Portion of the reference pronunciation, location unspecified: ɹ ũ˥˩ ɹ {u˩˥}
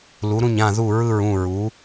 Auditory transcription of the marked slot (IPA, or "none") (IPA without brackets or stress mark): u˩˥